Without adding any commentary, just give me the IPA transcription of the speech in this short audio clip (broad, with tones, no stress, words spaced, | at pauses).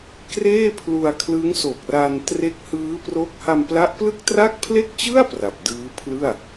kreː˥˩pʰlu˧a̯kʰlɯ˦˥ŋ so˨˩k̚ra˧n tre˦˥k̚hɯː˦˥pro˦˥k̚ ha˧mpla˦˥ʔplɯ˥˩k̚tra˥˩k̚ pʰle˥˩k̚t͡ɕɯ˥˩a̯ pra˨˩p̚dɯː˦˥pʰlɯ˥˩a̯